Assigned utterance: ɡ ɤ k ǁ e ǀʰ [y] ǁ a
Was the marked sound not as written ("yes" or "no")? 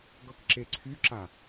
no